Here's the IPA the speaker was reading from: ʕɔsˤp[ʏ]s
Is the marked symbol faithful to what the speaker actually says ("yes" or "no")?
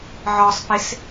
no